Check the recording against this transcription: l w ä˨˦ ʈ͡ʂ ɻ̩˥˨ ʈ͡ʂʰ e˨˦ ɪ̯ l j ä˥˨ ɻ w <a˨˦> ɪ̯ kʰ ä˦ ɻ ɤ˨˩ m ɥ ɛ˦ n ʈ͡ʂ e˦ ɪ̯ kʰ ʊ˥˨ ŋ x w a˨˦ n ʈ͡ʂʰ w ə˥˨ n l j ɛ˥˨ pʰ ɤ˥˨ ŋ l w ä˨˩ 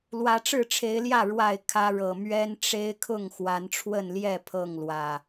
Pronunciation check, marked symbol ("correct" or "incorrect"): incorrect